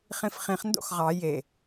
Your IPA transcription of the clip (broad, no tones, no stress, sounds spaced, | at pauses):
χ ĩ f χ ĩ χ n d o̰ x ʁ ɑ j e